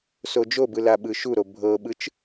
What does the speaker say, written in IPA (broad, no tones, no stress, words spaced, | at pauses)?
sod͡ʒobɯ laɓɯʃuɾo bʱɤɓɯt͡ʃ